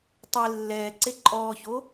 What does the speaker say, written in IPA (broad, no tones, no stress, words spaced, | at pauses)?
tˤe lːɛːǀe ǃʼɔːço